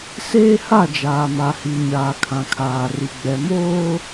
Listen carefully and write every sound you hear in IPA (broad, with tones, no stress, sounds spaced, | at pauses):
s eː˦ h a˦˨ d͡ʒ aː˨ m a˨ h i˨ ɲ aː˨ kʰ ã˨ kʰ aː˨ r i˨ ɡ͡b ɛ˨ m oː˦